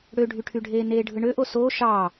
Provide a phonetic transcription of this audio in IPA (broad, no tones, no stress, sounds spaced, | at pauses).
ɽ ø ɖʱ y ʈʰ y ɖʱ eː n eː ɖʱ ɯ ɳ ø ʔ o s o ʃ ɑ